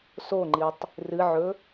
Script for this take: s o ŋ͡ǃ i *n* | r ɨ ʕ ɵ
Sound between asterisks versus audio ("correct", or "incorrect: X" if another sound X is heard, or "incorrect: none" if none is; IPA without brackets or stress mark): incorrect: tˤ